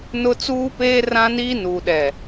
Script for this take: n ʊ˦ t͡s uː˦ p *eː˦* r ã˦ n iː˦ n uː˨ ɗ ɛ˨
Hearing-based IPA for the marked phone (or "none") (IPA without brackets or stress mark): eː˦